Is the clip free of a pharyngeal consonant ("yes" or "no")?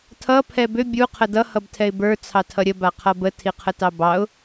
yes